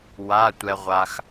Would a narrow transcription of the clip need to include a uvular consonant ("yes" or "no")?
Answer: yes